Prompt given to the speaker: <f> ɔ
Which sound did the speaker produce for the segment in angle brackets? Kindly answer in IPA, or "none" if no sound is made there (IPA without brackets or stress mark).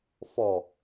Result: f